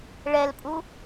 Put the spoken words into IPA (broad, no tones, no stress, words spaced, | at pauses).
ɭɛlpʼu